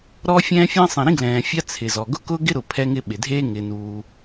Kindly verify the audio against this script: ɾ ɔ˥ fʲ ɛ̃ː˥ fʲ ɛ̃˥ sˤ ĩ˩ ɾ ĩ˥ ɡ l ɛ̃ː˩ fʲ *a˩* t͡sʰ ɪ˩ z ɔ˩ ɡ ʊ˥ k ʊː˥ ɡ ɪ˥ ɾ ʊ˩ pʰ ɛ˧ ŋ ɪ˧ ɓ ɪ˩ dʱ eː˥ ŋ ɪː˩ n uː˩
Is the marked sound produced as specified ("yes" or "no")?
no